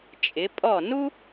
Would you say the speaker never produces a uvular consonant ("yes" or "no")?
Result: yes